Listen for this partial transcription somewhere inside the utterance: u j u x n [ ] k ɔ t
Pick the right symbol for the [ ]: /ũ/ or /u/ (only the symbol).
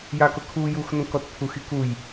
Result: ũ